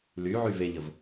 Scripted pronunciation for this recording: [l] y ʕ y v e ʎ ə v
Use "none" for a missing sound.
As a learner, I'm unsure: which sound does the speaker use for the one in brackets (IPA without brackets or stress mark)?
l